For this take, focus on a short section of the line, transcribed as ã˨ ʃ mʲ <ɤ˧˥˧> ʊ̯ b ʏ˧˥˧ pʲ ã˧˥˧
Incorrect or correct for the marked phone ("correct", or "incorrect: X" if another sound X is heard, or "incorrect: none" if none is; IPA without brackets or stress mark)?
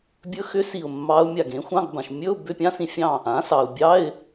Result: incorrect: ɵ˧˥˧